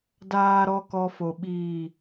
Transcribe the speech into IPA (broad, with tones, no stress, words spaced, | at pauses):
daː˨ɾɔ˨ kɔ˦fo˨ɓiː˦˨